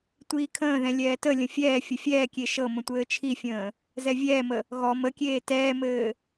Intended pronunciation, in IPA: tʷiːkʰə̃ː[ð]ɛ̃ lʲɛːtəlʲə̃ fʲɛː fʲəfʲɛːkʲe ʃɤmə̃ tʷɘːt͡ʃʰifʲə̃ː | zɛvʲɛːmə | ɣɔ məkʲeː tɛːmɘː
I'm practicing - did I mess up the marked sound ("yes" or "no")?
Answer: no